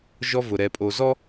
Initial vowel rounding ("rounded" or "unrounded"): rounded